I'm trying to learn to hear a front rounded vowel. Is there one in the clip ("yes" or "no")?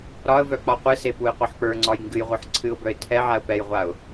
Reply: yes